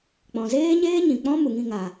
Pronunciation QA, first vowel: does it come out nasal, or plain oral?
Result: nasal